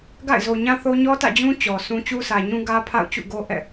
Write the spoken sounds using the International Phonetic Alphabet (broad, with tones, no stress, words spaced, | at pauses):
ɡa̰˦˨ɪ̯zo˨ɲã˦θo˦ ɲɔ˦tä̰˦˨d͡ʑũ˦ t͡ɕɔ˨sʰũ˦ t͡ɕu˦sʰä˨ɲũ˦ ɡä˦pʰa̰˦˨ʊ̯t͡ɕṵ˦˨ ɡo˦ʔɛ̰˦˨